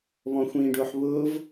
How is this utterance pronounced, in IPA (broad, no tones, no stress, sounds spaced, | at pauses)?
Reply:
β ɔ̃ xʷ ĩː ɖ ʊː ħ β ʊː v